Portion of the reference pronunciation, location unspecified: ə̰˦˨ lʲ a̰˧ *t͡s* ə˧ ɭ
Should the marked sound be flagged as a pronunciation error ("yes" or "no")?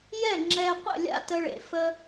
yes